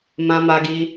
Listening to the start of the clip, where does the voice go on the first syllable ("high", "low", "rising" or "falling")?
high